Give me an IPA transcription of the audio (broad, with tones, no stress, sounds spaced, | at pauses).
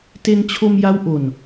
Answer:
t e˧ n t͡ɕʰ o˧ m j a˦˥ w ʔ o˨˩ n